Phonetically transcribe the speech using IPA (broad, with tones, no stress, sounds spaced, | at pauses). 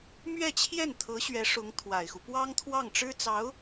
m ɥ ɛ˥˧ t͡ɕʰ j ɛ˥˩ n t̪ʰ ɤ˧˥ ɕ ɥ ɛ˧˥ ʂ ʊ˧˥ ŋ t̪ʰ w a˨˩ ɪ̯ x u˦ p w ɑ˥ ŋ t̪ʰ w ɑ˥˩ ŋ ʈ͡ʂ ɻ̩˥ t͡s ɑ˧˥ ʊ̯